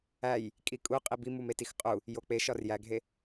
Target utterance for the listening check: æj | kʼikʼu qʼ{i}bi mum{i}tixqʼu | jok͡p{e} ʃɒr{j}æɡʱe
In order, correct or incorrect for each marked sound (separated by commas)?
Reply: correct, incorrect, correct, correct